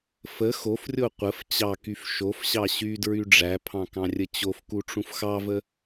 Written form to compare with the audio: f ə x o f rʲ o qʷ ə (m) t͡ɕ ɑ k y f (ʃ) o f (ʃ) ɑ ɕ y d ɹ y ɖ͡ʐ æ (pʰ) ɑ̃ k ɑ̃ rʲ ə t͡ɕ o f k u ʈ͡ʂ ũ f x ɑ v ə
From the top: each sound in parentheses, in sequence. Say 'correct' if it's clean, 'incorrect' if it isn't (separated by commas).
incorrect, correct, incorrect, correct